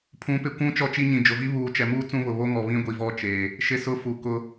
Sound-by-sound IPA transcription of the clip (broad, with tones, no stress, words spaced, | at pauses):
pʰũ˨˦pɪ˨ kʷũ˦ t͡ʃɔ˦t͡ʃi˦ɲĩ˨ d͡ʒʊ˨vi˦ βuː˨t͡ʃɛ˨muː˦ t͡sũ˦βʊ˨ βo˦ŋɔ˨ βĩ˦ɡʷi˨vɔ˦˨t͡ʃeː˨ | ʃɪ˦sʊ˦ fu˨kʊ˦